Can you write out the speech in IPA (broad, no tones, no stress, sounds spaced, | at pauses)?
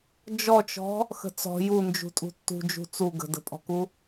d͡ʒ ɔ t͡ʃ ɔ̤ | x ə̤ t͡s ɔ̤ j u n d͡ʒ ṳ tʼ ṳ tː ṳ d͡ʒ ṳ t͡s u ɡ ə̤ d ə̤ pʼ ɔ̤ k u